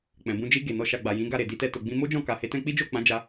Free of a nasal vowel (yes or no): no